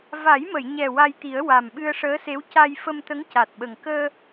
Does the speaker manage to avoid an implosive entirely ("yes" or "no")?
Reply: no